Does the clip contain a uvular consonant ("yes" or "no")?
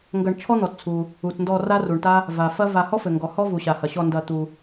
no